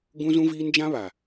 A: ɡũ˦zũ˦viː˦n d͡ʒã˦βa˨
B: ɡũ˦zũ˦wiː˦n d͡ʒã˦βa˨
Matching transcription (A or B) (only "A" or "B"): A